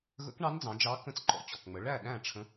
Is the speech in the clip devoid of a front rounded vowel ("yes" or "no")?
yes